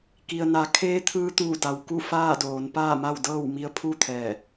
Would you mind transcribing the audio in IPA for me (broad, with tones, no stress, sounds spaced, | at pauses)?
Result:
k i˩ ə̯ n a˩˧ kʰ eː˧˥ t̪ʰ ɯː˧˥ t̪ uː˧˩ d a˩ w k u˥˨ f aː˥˨ d oː˩˧ n p aː˥˨ m a˥˨ w d ɤː˥˨ w m i˧˥ ə̯ pʰ u˥˨ t̪ʰ ɛː˧˩